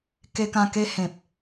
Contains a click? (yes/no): no